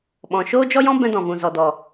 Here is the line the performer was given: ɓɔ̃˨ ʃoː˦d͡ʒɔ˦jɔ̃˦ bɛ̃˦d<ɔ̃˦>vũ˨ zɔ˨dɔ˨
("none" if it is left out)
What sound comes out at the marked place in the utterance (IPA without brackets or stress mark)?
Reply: ɔ̃˨